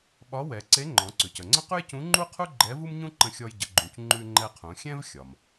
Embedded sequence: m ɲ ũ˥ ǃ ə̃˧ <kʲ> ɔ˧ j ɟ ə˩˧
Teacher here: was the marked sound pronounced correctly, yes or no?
no